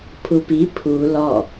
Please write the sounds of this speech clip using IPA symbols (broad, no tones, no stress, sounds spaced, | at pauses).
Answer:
pʰ u p i pʰ u l ɔ